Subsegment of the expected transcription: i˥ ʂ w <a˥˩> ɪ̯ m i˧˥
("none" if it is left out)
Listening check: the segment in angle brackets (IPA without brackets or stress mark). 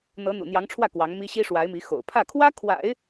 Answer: a˧˥